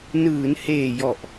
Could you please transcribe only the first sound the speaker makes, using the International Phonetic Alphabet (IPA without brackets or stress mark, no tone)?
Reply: n